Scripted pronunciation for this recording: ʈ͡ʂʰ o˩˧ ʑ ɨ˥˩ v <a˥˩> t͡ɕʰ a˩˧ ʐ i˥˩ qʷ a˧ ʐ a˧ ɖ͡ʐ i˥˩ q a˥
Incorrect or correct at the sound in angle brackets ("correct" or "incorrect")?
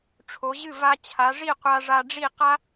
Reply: incorrect